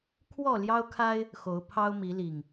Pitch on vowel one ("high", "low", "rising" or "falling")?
falling